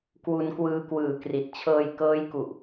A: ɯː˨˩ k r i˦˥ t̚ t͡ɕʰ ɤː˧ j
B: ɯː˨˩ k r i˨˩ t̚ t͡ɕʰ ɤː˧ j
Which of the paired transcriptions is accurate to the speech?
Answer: B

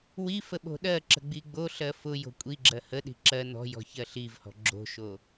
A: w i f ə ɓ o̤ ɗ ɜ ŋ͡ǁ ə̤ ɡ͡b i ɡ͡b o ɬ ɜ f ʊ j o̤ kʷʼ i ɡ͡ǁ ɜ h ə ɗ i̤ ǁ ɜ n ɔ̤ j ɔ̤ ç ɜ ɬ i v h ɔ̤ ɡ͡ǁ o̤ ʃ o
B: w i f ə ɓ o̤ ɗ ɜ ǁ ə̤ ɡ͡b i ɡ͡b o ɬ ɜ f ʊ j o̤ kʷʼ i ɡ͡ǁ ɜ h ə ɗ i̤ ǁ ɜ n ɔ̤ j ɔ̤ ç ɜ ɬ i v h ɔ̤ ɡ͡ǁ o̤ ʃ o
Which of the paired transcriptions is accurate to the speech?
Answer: B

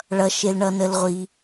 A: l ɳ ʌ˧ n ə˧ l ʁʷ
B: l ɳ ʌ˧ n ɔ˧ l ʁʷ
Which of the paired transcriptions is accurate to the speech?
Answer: A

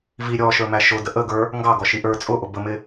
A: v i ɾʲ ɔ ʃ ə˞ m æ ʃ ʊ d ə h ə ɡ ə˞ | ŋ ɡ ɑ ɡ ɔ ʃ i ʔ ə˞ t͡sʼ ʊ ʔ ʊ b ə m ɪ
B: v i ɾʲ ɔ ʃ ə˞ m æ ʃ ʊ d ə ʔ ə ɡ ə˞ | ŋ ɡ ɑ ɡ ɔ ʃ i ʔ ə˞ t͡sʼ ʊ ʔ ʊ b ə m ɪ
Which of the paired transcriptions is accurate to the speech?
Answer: B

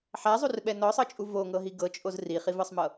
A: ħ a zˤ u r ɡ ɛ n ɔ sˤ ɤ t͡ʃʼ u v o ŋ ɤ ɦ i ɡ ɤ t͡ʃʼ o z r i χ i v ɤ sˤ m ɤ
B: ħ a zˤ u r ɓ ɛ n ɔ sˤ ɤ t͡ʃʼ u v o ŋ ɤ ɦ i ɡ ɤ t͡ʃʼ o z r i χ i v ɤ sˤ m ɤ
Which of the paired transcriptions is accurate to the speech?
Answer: B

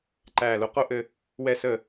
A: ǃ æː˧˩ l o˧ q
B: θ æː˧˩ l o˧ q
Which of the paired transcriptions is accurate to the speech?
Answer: A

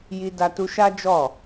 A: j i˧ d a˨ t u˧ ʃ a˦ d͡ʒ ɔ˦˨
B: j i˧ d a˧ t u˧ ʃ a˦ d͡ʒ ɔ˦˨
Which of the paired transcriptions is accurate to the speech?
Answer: B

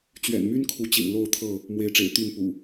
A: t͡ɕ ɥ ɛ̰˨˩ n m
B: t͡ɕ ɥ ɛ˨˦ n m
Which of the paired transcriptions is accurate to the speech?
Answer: A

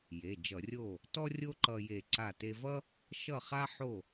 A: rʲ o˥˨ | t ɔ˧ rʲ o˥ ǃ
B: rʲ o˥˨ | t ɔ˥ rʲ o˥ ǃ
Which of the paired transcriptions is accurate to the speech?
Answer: B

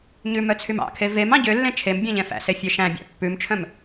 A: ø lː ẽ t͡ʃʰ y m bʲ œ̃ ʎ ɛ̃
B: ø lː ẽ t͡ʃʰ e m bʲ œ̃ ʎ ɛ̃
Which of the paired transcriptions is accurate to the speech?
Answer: B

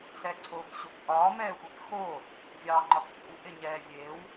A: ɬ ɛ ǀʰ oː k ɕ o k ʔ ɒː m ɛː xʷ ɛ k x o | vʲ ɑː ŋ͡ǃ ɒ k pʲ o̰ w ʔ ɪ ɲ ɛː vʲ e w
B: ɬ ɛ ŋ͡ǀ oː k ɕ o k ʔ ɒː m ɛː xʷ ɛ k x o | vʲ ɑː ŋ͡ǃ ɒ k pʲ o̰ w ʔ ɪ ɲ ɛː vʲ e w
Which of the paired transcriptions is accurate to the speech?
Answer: A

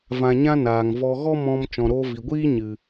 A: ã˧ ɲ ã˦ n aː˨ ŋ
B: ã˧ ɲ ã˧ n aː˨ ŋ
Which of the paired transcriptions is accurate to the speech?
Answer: A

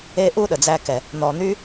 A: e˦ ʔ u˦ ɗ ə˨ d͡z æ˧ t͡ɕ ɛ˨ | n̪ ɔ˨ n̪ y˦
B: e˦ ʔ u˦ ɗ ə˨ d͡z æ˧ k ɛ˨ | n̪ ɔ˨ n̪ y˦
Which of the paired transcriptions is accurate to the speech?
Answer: B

